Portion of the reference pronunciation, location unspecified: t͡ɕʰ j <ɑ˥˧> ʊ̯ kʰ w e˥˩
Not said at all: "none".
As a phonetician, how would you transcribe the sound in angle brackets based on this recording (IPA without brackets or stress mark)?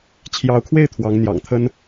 ɑ˧˥